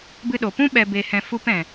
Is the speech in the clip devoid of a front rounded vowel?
yes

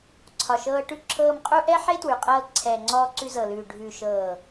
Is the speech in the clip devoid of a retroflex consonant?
no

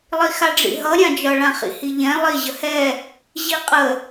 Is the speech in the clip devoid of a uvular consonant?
no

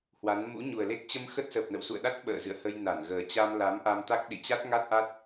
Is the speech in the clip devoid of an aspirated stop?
yes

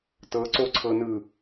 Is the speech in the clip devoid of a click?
no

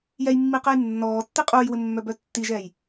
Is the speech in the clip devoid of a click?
yes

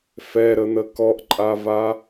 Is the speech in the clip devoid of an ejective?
no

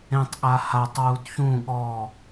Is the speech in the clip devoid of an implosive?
no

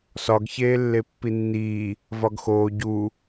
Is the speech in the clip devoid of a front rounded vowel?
yes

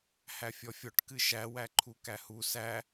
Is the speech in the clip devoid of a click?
no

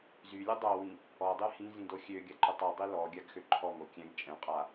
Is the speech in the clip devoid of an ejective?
no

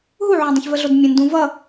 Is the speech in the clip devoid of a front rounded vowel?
yes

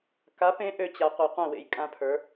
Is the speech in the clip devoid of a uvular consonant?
no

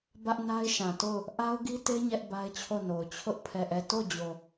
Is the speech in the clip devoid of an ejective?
yes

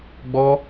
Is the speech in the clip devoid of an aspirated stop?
yes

